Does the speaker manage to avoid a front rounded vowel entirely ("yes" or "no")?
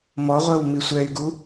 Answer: no